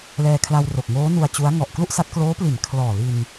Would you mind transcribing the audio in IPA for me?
l ɛː˧ kʰ l a˧ w r o˨˩ k̚ ŋ oː˦˥ n u˧ a̯ t͡ɕ u˦˥ a̯ ŋ ɔ˨˩ ʔ k l u˥˩ ʔ s a˦˥ t̚ k l oː˦˥ p l i˩˦ n kʰ l ɔː˨˩ l i˧ n

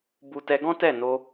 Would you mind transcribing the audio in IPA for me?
b u˨ t ɛ˧ ɡ ɔ̃˦ t ɛ˦˨ n o˧

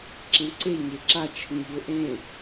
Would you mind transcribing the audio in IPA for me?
ǁ ẽ ǀ e ɲ e ǁ a t͡ʃʰ ĩ ʎ o ʔ ẽ

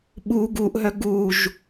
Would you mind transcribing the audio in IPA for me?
ɓ u ɡ u ʔ ɦ œ ɡ u ʒ

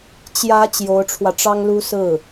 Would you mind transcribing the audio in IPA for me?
t͡ɕ j ä˧˥ t͡ɕ j o˧˥ ʊ̯ ʈ͡ʂʰ w ä˧ ʈ͡ʂ ɑ˥ ŋ l u˥ s ɹ̩˥˩

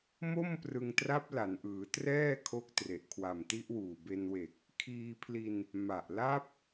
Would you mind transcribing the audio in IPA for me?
m o˥˩ m p r ɯ˧ ŋ t r a˦˥ p̚ l a˩˦ n ʔ ɯː˩˦ t r ɛː˥˩ kʰ o˦˥ k̚ t r e˨˩ ʔ kʰ w a˨˩ m t i˦˥ ʔ w uː˨˩ b e˧ n w e˨˩ k̚ | kʰ iː˧ pʰ l i˧ n | m a˨˩ ʔ l a˦˥ p̚

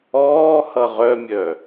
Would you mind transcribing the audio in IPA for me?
ɔː h ʌ ʁ œ mʲ œ

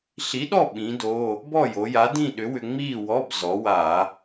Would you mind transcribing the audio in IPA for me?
ɬ i˨˥ ɗ ɔ˥˨ ɓ ĩ˨˥ d o˧˥˧ | b ɔ˥˨ j o˩˧ j a˨˥ d ĩ˥˨ ɗ ʏ˨˥ w ʏ˧ ŋ͡m iː˥˨ w ɔ˧˥˧ b z ɔ˩˧ w a˧˩˧

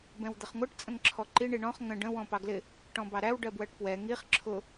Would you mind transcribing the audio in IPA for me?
b ɛ̃ w d̪ ə χ ŋʷ ɜ ʈ t͡sʼ ə̃ ŋ ǁʰ ɔ ǃ i ɳ i ɳ ɔ̃ χ ŋ ə̃ ɖ ə̃ w ɔ̃ p ɑ ɡ l ɪ | ʈ ɔ̃ b ɑ ɾ æ w ɖ ɜ b w ɜ ʈ p w ɛ ŋ i χ ǁʰ ʊ

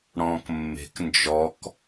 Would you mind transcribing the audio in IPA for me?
ɽ ɔ̃ː k mː e̤ k n d͡ʒ ɔ k

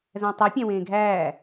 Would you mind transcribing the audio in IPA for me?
z æ̃ tˤ i pʲ æ̃ w ẽː ɡʱ æː

